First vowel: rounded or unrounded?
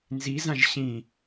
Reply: unrounded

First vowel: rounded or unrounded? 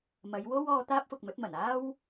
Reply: unrounded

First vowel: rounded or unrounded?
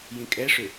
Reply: unrounded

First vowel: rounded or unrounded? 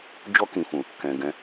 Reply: rounded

